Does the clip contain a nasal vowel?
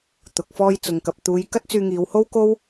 no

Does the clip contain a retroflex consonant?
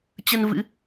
no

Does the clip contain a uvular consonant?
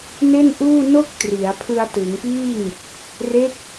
no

